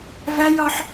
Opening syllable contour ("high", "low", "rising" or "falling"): high